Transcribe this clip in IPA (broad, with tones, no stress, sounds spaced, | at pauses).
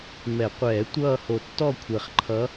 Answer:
m ɛ˨˩˦ qʷ ɛː˨˩˦ tʷ ʌː˥˨ h o˧˩ tː ɔ˥˨ kʷʰ e˧˩ χ ǃʰ ʌ˧˥